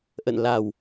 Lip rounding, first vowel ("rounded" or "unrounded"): unrounded